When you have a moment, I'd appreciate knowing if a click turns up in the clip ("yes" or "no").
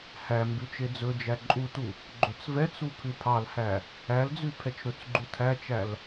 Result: yes